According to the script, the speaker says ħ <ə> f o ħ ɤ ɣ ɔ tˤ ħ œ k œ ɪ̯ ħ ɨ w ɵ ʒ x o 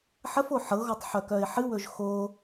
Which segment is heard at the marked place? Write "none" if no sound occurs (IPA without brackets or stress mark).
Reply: ə